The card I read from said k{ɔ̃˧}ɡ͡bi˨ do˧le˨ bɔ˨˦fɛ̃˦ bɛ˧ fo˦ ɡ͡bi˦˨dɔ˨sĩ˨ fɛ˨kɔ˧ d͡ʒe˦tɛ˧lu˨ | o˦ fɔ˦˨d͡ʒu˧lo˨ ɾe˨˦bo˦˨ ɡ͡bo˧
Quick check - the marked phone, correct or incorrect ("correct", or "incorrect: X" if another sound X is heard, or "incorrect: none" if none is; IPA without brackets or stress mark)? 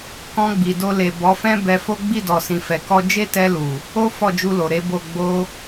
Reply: correct